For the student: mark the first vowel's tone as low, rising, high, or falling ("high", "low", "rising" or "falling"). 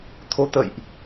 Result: rising